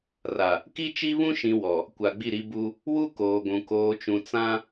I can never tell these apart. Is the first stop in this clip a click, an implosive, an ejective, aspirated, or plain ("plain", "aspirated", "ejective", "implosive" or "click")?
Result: plain